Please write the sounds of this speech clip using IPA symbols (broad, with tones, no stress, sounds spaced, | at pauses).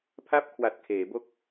pʰ a˥˩ p̚ kʰ w a˨˩ t̚ kʰ eː˩˦ b o˥˩ k̚